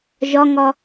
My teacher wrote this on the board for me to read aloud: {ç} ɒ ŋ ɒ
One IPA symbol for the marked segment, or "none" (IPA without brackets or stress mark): ʒ